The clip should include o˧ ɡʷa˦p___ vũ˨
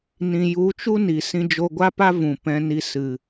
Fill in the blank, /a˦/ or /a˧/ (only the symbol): a˦